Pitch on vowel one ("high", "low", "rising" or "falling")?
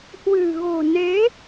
low